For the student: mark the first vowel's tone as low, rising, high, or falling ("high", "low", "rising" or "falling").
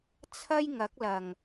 high